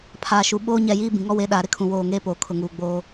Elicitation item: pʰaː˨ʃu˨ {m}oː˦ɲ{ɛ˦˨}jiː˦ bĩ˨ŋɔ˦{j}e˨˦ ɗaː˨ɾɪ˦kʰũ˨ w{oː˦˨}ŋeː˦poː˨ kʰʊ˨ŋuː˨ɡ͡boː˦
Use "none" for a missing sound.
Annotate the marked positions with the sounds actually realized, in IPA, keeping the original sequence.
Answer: ɓ, ɛ˦˨, w, oː˦˨

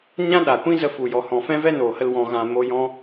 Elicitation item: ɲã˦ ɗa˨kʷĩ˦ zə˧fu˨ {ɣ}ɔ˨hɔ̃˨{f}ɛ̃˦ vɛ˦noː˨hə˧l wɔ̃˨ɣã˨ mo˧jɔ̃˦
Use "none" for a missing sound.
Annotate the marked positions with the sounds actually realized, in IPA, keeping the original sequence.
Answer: j, f

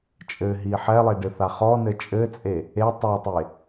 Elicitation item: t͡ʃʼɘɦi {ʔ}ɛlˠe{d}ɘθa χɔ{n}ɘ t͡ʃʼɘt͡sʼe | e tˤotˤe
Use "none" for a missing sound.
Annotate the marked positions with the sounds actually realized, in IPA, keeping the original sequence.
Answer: ħ, ɖ, n

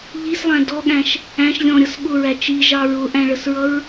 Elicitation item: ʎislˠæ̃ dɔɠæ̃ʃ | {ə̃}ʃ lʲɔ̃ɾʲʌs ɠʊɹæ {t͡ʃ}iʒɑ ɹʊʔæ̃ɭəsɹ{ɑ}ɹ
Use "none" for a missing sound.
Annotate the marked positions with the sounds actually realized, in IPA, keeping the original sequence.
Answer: æ̃, t͡ʃ, ʌ

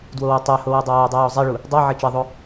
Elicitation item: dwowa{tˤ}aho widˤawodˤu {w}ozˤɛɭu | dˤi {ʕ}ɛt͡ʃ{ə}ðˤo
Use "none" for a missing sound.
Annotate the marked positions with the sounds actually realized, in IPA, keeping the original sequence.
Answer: tˤ, w, ʕ, ɛ

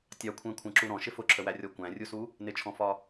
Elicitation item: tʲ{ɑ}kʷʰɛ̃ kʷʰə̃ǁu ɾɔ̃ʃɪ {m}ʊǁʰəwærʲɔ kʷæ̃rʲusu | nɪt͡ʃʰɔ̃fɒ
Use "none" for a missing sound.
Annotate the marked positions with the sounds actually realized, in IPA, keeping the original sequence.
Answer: ɑ, f

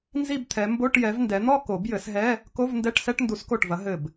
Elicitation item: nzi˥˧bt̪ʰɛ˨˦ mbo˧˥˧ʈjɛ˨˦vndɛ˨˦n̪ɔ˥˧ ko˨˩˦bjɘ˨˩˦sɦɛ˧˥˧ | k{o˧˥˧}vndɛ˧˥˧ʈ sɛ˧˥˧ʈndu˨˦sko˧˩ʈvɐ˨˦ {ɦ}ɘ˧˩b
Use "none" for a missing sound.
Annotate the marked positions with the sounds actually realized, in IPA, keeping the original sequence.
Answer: o˧˥˧, ɦ

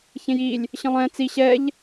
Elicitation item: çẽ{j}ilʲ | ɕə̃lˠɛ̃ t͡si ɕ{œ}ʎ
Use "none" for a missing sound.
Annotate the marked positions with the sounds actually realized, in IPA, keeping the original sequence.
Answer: j, ɛ

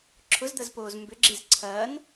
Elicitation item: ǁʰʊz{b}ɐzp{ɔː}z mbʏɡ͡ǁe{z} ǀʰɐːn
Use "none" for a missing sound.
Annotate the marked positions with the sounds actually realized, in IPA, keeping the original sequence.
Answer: d̪, oː, z

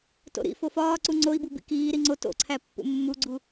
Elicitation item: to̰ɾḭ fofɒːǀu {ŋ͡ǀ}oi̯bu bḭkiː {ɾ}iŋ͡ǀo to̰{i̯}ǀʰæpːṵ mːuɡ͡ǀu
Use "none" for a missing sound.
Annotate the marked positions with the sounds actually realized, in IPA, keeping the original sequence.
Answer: ŋ͡ǀ, ɾ, none

